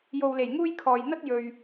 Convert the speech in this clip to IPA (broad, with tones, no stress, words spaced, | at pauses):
jo˨wle˨˩j ŋuː˥j kʰɔː˨jn̪ɐ˥t̚ jɵ˨ɥ